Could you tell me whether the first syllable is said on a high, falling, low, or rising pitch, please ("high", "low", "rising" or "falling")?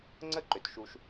high